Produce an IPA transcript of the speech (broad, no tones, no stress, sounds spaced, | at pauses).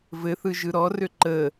v ɘ θ ɯ ʒ ɯ ɾ ɔ r ø ǃ ə